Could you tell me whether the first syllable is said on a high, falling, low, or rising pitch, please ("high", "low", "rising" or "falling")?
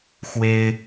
high